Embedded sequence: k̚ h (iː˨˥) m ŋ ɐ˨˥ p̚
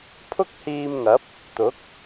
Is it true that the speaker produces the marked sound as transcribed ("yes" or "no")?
no